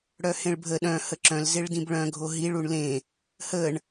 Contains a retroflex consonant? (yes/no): yes